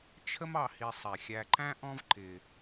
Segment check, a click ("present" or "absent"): present